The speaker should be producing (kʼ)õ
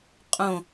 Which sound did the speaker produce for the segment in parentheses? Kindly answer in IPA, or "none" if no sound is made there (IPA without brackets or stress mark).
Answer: qʼ